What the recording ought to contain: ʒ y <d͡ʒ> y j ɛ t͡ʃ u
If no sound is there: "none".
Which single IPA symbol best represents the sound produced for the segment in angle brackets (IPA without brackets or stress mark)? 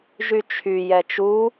t͡ʃʰ